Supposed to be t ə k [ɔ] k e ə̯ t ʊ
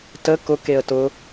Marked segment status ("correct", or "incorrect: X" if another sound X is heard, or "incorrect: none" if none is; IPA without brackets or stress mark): incorrect: ʊ